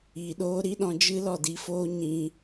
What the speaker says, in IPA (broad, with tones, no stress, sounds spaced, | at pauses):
iː˨ ɗ oː˦ ɾ i˦ ɗ ɔ̃˧ d͡ʒ ɨ˦ l ɔ˦˨ d i˧ f oː˦ ɲ ĩ˧